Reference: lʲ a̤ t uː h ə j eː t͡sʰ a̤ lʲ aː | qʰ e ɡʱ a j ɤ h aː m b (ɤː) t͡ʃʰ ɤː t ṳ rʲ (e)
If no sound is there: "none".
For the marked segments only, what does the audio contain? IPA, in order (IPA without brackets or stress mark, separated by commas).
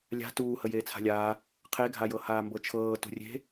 ɤ, e̤